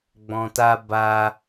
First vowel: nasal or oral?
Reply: nasal